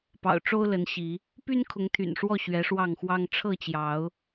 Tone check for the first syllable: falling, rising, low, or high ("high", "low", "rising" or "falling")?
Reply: low